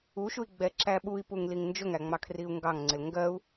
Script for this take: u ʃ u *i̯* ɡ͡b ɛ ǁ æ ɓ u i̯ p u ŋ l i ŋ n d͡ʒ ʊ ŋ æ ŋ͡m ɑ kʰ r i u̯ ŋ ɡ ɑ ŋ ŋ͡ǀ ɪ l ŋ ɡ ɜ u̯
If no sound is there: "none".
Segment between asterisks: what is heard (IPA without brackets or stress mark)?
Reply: i̯